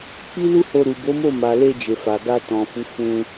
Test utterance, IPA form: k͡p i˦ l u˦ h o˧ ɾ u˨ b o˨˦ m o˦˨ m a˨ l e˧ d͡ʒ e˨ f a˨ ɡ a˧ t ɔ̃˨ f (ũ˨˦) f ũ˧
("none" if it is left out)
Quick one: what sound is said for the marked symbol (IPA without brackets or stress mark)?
u˨˦